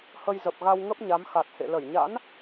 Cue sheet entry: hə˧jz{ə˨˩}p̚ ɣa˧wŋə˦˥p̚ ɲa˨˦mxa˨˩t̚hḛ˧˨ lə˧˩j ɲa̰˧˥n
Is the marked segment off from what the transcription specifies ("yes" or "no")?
no